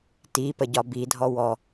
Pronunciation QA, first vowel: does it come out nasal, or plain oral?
oral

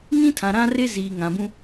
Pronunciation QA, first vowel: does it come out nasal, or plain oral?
nasal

